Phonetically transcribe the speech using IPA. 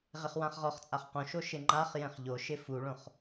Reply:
ʁɪχwãχʁɔχt͡sʼaχ qõʃo ʃɪŋ͡ǃaχjɛ̃χ ʎoʃɪ fuɭõχ

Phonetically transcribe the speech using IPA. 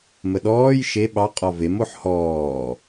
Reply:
məɗɔːj ʃe ɓɑ qʼɔvem oħhɔː

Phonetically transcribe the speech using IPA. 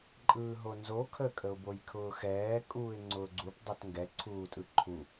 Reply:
ǃʼɯːɦonzo kʰəkʼəʊ̯bojkʰʊː xɛː kʼuːɪ̯ŋ͡ǀʊːɡ͡ǀup dˤotŋɡɛǀʰuːtʼɯ ǃʰu

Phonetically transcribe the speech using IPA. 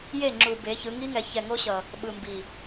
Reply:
je˦˨ŋ͡ǁu˨be˨˦çɯ˨˦ ŋi˦ŋɛ˨˦ çɛ˨ŋo˦ɕʌ˨ | ɓɯ˨mbi˨

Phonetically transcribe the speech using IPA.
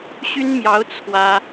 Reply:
ɕy˥nmjɑ˧˥ʊ̯ t͡sʰwä˥

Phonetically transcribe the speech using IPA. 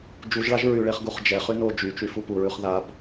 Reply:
d͡ʒuʒɭaʒ ɹyɭeχɡuχ d͡ʒɛ χyno d͡ʒyt͡ʃy fupuɹʉχ ðab

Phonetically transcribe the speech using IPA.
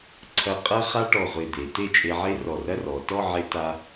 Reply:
ǀʰɐ˧ qʼɐ˥χa˥ ʈɔ˧˩ʁʷe˧˩d̪e˩˧ te˥˧t͡ʃʼe˧ʕe˥ rɔ˧˩rɐ˥rɔ˩˧ tɔ˥˧ʕe˧ ta˧

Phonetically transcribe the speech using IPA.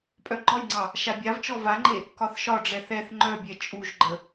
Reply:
pʼœɡ͡ǃɒjŋ͡ǀɑ | ʃabʲavt͡ʃɔ vaŋ͡ǃe | kɒθʃɒɖ͡ʐɛ θɛθ ŋ͡ǃœbʲɛ t͡ʃʼuʒɡ͡ǃə

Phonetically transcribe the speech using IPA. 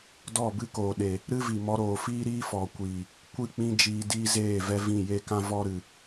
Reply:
dɔ˦˨bɨ˦koː˨ ɗe˨ | ɾɨ˦ vi˨mɔ˧ɾoː˨ fiː˦ɾiː˦fɔ˨kʷiː˨ | kʷɨ˦˨k͡pĩ˦d͡ʒiː˧ diː˦zeː˦˨vɛ˦ vĩ˦˨je˦kã˦ vɔ˦ ɾɨ˨

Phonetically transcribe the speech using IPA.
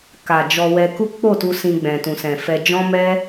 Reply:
ka˨ d͡ʒɔ˧wɛ˧ ku˦k͡po˦˨tu˧ sĩ˧ɡ͡bɛ̃˨tũ˨sɛ̃˨ fɛ˧ d͡ʒɔ̃˦mɛ˦

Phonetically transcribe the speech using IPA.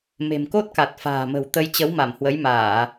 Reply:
me̤˨˩m ko˦˥t̚ka˨˩t̚ fa̤ː˨˩mə̤˨˩wt̪ə˧j t͡ɕə˨˦wma˧˩mhwə˨˦j maː˧˩˨

